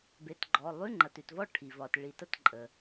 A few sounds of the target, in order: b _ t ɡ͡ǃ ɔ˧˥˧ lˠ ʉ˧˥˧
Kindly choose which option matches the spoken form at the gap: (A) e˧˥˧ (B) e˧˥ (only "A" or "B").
A